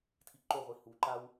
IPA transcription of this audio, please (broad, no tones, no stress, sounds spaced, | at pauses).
tʰ i ǃ o ʁʷ i h u ǃ a w